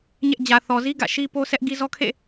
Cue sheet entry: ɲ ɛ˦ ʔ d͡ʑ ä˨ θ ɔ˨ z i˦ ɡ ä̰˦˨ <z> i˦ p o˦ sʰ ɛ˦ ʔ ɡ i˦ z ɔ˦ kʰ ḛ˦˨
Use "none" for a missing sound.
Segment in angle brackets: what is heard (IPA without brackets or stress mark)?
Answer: ʃ